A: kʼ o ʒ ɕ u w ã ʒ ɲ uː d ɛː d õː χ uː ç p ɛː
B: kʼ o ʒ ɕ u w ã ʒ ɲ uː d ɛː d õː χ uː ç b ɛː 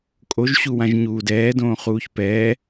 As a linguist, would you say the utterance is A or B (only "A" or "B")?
A